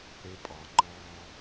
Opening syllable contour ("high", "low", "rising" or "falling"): high